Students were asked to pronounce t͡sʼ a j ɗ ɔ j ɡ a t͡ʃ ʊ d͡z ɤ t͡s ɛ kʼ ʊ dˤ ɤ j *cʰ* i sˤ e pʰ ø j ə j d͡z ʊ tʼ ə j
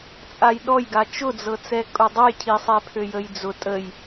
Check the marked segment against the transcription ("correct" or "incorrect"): correct